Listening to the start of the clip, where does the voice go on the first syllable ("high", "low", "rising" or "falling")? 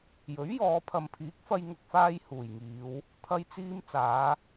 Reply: rising